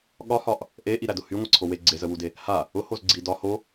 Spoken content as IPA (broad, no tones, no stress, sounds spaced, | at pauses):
ɠ ɒ h ɒ ʔ | ʔ e ʔ i ɾ æ d ʊ h y ŋʷ a ǀʰ o w e ɡ͡ǀ e z ə w u d e | h a | ʊ h o z ɡ͡ǀ i d ɒ h o